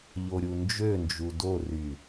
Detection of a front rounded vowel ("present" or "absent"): present